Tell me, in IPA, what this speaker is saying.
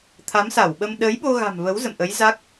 t̪ʰ a˨˦ m s a˧˩ w ɓ ə˧ m ɗ ə˨˦ j ɓ o˧ ɣ a̤˨˩ m v ə˨˦ w z ə̰˧˨ m ʔ ə˨˦ j z a˦˥ k̚

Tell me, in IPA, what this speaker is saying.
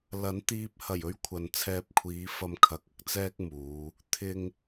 l ɐ˨˥ n t̪ iː˧ p̚ h ɐ˨˩ j ɵ˧ ɥ kʷʰ ɐ˨ n t͡sʰ ɛː˧ p̚ kʷʰ iː˨˧ f ɐ˧ m kʰ ɐ˨ k̚ ɐ˥ k̚ t͡s ɛː˥ k̚ m uː˨˧ | t̪ʰ ɪ˨ ŋ

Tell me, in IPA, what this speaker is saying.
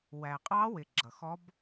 w æ˨˩ qʼ ɑ˦˥ w ɪ˨˩ ɡ͡ǁ ʌ˨˩ x ɔ˦˥ b

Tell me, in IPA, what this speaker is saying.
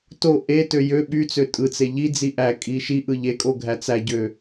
t o ʔ e t ø j ø ɓ y t͡s ø tʼ ɯ t͡s e ʎ i d͡z i ʔ æ kʼ i ʃ i ʔ ɯ ʎ e kʼ o ɡʱ æ t͡s æ ɟ ø

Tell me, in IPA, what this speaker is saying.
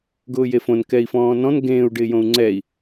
ɡ ʊː j e f õ n k ɛ i̯ f ɔ̃ː n ɔ̃ n ɡ ẽː u̯ ɖ ɪː j õ u̯ ŋ͡ǀ ɛː i̯

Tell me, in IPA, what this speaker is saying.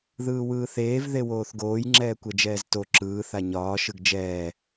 ð ɯː w ɯː θ eː v ð e w oː θ ɡ oː j ŋ͡ǁ ɛː kʷ ɛ d͡ʒ ɛː z t o ǁ ɯː θ a ɲ ɒː ʃ ɯ ɡ d͡ʒ ɛː

